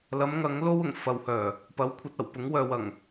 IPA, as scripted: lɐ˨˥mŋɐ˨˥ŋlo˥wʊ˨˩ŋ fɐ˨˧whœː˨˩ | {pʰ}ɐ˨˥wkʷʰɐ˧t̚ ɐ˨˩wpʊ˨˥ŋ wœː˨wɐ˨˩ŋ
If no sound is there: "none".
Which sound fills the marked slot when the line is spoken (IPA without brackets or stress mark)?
p